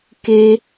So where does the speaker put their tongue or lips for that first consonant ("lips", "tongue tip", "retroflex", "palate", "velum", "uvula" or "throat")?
velum